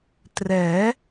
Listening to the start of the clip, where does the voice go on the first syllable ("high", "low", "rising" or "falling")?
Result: rising